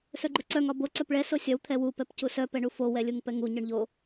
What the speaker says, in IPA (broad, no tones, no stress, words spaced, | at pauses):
sœɡ͡ǃɵǀœŋ ɒbo ǀœpɭɛ sosʲɒw t̪ʰɛwu pɛpcusœ pɛɳufo wɛlʲuŋpɛŋu ɲœɳʎo